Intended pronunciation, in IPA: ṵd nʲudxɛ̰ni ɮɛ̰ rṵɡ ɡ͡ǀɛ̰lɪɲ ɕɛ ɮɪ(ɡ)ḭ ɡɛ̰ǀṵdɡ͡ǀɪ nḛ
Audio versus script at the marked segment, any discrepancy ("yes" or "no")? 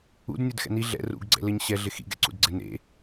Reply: yes